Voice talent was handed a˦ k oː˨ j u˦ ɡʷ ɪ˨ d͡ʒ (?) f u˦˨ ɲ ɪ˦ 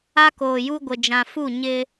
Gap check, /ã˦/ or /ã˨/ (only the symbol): ã˨